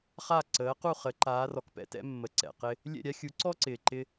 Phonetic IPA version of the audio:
χ a˥˩ ǀ əː˩˥ q u˥˩ χ ə˩˥ ǃ aː˩˥ r ɔ˩ k p ɛ̰˩˥ t ɛ̰˩˥ mː ə˩ ǀ ɛ̰˩ q ɪ˧ | lʲ ɛ̰˥˩ ɾʲ a˥ xʲ u˩˥ ǀ ɔ˥ ǀ ɪː˩ ǃ ɪ˧

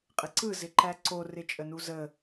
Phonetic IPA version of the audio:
qʼ ɪ ǀ ɯ z ɪ ǃ æ ǀ o r ɪ t͡ʃʼ ə n u z ə

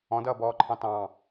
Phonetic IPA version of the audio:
ɔ̃ d ʌː b ɔː ǃʰ ɑ̃ t ɑ̃

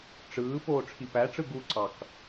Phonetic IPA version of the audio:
ʈ͡ʂ ɯː p oː ʈ͡ʂʰ i p æ ʈ͡ʂ ɯ ɡ u ǀ ɑ k

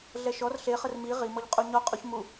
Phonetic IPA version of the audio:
ɮ ɛ ʃ ɔ r ɬ e χ ə r m i ʁ i m ɔ ʎ qʼ u ɲ ɔ qʼ u ç m u

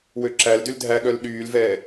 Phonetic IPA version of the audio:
w ø ǁ æ l d y l dʱ æ ɠ œ l ɗ yː l v ɛː

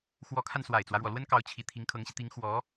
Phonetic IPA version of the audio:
x w ɔ˧˥ kʰ a˧ n s w a˨˩ ɪ̯ t͡s w ä˦ ɻ w ɔ˩ l w ə˥ n k ɑ˧˥ ʊ̯ t͡ɕʰ i˨˩ t̪ʰ i˧˥ ŋ kʰ ɤ˧˥ ŋ ɕ i˧ t̪ i˧˥ ŋ x w ɔ˧˥

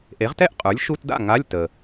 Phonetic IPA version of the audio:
ʔ e˩˥ ʁ t ɛ˥˧ ʔ qʼ ə˞˩˥ lʲ ʃ u˧˥˧ t d a̰˥˩ ŋ a˧˥˧ lʲ t ə˩

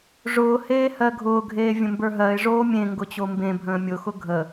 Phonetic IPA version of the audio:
ʐ ʊː h eː h ɜ ɡʱ ʊː ɡʱ eː vʲ ə̃ m b ə˞ ɦ ɜ ɪ̯ ʐ oː mʲ ẽ ŋ ɡ ʊ t͡ɕ o m b ẽ bʱ ə̃ː mʲ ʊ x ʊ ɡʱ ə

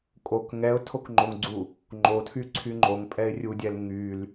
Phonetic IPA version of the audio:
kʼ o k ŋ ɛ ʊ̯ tʰ o k ŋ͡ǃ o ŋ ɡ͡ǀ u | ŋ͡ǃ o tʰ y ǀʰ y ŋ͡ǃ o ŋ pʼ ɛ ɪ̯ rʲ u dʲ ɛ l ŋ y l

